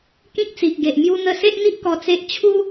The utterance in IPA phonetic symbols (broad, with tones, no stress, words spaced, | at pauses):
kĩ˦k̚t͡si˨ʔɡe˨ʔ mju˦n̪ə˦ se˦ʔn̪i˦ʔ kɔ˧t͡se˦ʔ t͡ɕʰu˦